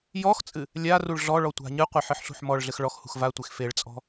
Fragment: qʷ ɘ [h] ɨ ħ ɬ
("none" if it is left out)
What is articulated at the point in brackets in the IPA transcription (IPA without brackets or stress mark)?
ħ